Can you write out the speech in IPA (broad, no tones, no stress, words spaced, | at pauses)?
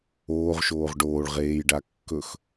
oːʁʃoːʁ ɖoːɭ ʁeːjɖa kːɵx